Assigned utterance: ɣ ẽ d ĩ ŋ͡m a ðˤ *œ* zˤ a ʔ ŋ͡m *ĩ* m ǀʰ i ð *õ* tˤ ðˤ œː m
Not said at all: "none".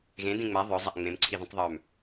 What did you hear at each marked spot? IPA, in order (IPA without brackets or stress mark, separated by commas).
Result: œ, ẽ, ũ